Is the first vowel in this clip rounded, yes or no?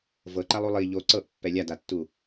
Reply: no